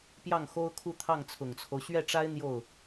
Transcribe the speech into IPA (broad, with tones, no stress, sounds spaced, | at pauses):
p j ɑ˥˩ ŋ x o˥ ʊ̯ kʰ u˥˧ t̪ʰ ɑ˥˩ ŋ t͡sʰ ʊ˨˩ ŋ t͡sʰ o˦ ʊ̯ ɕ ɥ ɛ˥˩ ʈ͡ʂ a˥ ɪ̯ n̪ j o˥˩ ʊ̯